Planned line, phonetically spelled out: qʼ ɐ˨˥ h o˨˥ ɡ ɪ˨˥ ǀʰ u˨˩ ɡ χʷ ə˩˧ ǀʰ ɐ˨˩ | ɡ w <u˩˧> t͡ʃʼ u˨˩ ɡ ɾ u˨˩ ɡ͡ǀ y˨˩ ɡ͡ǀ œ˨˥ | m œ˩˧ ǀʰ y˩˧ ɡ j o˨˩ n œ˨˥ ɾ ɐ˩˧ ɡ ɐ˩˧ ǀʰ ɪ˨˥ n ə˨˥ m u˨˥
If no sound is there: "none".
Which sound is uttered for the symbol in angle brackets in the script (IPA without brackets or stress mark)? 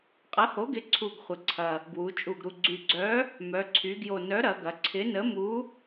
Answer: u˩˧